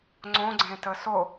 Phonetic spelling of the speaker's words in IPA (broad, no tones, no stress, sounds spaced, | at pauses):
ŋ͡ǀ õ ɡ͡ǀ ẽ t ə s o